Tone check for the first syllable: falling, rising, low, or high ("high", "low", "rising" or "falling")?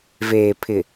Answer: low